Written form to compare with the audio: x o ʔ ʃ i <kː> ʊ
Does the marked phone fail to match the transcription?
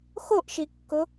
no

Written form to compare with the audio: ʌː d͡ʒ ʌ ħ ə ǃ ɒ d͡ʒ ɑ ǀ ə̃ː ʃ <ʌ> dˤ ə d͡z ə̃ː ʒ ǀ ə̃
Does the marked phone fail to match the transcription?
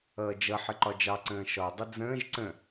yes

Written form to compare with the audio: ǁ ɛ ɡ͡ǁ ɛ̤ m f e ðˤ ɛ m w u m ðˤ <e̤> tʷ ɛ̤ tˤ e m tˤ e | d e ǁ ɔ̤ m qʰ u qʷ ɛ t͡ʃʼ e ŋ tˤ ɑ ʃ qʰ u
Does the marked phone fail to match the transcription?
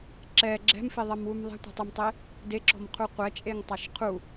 yes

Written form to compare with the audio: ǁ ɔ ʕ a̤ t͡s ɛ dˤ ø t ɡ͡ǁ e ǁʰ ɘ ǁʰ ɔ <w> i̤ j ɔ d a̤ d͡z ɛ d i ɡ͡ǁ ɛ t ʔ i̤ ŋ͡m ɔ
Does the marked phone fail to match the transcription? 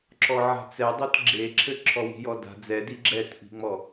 no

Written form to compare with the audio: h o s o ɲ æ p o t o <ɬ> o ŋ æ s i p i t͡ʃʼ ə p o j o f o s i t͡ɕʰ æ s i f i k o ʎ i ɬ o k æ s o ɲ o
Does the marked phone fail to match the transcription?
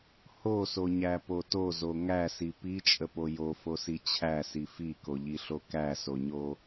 yes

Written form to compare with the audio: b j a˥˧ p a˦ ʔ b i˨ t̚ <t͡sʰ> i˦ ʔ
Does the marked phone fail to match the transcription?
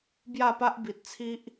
no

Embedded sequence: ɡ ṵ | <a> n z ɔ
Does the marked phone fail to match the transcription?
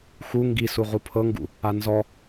no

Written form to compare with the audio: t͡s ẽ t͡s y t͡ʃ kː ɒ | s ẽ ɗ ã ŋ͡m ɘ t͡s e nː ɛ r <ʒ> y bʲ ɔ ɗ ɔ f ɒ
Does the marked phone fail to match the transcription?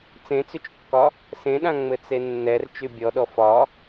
yes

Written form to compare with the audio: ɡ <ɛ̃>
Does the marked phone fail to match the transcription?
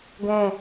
no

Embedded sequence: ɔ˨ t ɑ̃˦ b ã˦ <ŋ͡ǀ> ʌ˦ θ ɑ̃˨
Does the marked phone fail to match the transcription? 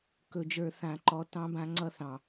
no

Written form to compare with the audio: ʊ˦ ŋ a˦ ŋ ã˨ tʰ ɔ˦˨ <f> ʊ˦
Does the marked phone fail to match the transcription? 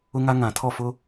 no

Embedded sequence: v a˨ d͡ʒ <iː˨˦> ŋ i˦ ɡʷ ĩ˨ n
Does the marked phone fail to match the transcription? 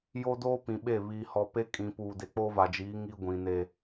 no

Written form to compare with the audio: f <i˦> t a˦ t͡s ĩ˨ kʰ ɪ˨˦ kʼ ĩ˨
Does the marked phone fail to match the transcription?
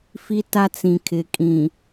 no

